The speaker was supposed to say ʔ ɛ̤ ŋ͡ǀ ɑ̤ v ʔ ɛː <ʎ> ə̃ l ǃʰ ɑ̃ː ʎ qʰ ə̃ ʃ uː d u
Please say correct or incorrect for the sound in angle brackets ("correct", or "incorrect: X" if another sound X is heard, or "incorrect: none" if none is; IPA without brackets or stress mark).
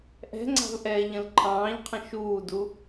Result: correct